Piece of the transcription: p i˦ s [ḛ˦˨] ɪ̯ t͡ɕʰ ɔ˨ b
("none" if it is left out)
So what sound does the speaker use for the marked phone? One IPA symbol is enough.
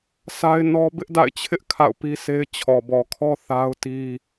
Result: e˦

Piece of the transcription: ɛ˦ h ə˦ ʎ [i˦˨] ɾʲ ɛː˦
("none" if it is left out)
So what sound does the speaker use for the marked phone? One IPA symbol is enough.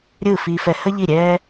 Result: i˦˨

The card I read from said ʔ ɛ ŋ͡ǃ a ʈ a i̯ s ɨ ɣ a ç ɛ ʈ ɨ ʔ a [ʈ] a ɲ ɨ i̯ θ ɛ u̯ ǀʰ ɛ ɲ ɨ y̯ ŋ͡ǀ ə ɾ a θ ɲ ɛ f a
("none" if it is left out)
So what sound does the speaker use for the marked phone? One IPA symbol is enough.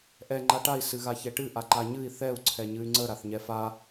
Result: ǃ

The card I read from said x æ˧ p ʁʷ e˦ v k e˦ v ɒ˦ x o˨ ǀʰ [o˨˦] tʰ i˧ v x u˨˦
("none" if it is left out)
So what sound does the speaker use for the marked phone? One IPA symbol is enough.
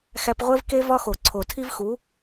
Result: o˨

